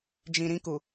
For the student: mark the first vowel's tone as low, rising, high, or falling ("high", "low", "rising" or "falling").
low